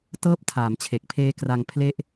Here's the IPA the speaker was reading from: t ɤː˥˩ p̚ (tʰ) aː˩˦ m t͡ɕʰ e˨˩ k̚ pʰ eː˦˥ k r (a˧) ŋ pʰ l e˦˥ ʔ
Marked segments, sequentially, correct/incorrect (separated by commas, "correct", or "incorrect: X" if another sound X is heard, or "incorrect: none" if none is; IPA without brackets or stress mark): correct, correct